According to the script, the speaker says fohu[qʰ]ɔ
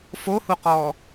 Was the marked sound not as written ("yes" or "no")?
yes